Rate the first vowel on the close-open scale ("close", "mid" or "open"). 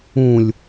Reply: close